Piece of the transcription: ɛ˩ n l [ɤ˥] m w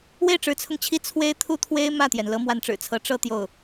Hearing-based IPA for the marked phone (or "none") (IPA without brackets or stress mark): ɤ˥